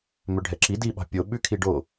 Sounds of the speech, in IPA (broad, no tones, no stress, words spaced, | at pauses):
mœɖʱɛǁi diɓɑ̤pʲo ɓʉkʰiɖo